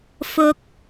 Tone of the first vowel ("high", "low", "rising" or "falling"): low